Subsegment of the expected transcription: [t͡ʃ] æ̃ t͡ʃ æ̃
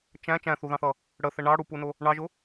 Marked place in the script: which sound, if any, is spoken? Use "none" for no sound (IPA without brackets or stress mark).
t͡ʃ